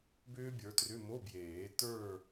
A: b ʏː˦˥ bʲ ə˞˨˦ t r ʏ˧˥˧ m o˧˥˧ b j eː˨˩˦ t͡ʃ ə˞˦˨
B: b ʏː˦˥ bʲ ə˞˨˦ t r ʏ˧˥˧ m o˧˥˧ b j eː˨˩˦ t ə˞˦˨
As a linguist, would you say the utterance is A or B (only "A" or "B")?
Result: B